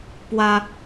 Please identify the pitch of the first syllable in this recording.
high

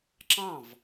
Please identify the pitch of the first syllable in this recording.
falling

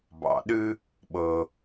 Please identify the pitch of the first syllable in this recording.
low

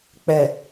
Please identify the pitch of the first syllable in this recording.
low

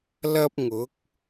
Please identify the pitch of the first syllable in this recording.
high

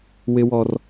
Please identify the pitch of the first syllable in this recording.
high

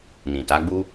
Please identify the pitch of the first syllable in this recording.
low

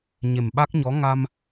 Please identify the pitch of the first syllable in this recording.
low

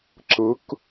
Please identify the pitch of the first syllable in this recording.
rising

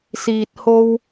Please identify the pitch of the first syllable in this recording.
low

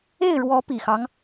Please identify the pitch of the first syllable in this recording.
falling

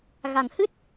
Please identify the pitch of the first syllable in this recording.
low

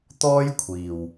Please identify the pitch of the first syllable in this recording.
high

